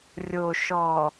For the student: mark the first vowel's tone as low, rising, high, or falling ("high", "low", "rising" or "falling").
low